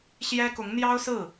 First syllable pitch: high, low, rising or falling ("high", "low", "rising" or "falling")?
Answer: high